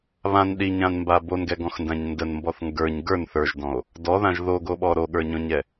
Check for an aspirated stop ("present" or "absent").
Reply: absent